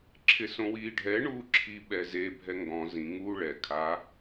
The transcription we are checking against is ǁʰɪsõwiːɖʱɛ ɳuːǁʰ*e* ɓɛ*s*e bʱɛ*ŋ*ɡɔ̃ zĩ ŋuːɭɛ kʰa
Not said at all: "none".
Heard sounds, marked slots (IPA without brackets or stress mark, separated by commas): i, z, ŋ